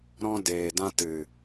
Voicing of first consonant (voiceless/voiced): voiced